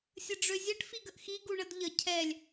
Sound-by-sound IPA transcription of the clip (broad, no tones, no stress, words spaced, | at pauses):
sʲəɖ͡ʐøzʲɛʈ fiɡəʔxi ɡuɳədʎə cʰɛlʲ